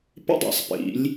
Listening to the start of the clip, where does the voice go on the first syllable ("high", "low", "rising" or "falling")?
high